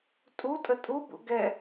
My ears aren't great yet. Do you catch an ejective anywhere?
yes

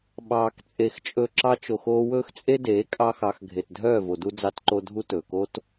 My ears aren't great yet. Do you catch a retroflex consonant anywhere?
no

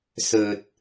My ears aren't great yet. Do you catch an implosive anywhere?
no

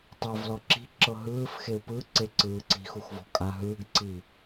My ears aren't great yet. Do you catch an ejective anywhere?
yes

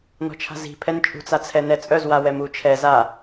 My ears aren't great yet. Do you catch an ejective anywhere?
yes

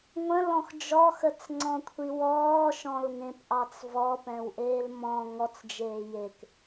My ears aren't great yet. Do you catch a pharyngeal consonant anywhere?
no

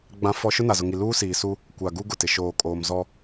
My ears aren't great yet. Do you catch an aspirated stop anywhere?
no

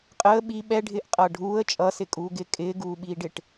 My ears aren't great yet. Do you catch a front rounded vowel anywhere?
no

